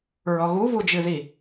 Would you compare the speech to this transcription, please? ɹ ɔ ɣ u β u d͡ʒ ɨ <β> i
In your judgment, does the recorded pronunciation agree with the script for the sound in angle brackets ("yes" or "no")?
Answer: no